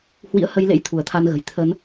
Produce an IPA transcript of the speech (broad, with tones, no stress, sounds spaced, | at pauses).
h w ḭ˧˥ ə̯ h ə˧ j l ḛ˧˥ j t̪ʰ u˧˩ ə̯ t̪ʰ a˧ n ɣ ə̤˨˩ j t̪ʰ ə˨˦ n